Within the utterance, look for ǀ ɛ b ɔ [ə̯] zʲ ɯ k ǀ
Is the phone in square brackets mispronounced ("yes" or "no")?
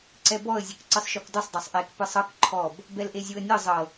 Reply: no